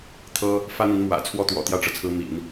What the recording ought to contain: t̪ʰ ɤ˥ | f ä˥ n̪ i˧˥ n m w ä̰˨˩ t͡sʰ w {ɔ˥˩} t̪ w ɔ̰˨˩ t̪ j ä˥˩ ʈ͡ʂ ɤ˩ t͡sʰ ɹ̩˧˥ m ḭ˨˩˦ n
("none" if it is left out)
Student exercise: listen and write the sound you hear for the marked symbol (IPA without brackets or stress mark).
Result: ɔ˥˩